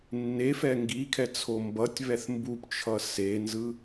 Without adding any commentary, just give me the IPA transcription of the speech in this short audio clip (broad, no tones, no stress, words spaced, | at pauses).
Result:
nːefɛ ŋɡikʰɛt͡sʰo mbʌtʲβɛθ mbupt͡ʃʰʌ senzɯ